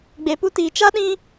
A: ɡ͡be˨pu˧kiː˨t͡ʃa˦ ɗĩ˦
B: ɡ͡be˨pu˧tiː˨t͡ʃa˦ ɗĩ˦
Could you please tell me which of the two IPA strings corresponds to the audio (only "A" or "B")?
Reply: B